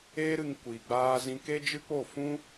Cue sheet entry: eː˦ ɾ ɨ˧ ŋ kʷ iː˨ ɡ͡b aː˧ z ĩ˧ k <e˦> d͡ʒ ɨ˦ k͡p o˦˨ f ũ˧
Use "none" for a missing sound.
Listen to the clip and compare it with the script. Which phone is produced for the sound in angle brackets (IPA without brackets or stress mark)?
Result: e˦